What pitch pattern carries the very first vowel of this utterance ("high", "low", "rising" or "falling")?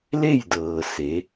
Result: falling